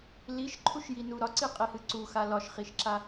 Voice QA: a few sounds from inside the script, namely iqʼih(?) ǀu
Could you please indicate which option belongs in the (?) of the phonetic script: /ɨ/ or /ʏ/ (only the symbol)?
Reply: ɨ